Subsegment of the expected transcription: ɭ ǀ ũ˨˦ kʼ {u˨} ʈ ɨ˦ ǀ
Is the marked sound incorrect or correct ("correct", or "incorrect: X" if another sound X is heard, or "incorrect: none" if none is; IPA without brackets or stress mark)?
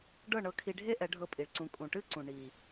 incorrect: ũ˨